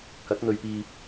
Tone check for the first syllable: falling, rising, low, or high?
rising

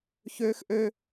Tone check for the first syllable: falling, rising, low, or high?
high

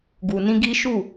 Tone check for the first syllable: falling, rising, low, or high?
low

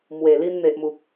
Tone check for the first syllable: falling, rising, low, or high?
low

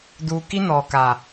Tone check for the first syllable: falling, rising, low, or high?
low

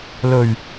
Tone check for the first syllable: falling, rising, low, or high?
low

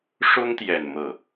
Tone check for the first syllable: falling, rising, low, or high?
high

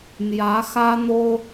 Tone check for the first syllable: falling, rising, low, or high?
rising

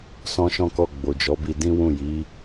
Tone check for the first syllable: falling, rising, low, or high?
high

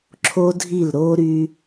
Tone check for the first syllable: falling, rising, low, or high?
high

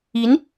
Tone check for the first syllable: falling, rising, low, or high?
rising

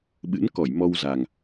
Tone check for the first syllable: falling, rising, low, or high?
rising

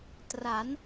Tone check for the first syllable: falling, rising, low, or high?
rising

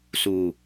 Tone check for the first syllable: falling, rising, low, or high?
low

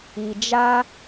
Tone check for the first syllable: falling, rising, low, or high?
low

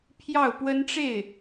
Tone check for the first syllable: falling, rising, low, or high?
falling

